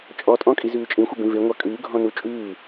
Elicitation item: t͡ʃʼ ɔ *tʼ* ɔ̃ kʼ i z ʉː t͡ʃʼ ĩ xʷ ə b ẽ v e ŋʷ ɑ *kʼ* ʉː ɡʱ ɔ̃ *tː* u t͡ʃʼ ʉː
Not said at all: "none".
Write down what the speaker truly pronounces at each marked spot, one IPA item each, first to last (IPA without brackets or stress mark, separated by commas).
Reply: tʼ, kʼ, n